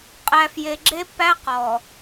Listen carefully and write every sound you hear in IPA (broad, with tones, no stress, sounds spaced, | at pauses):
qʼ æ˨ f j e˨ ɡ͡ǁ e˦ pː æ˦ q ɔ˨